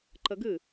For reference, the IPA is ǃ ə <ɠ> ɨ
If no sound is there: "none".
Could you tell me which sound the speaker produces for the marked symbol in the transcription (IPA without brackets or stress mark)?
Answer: ɡ